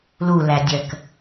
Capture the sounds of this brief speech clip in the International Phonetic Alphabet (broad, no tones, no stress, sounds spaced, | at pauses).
l u l æ dʲ ɜ k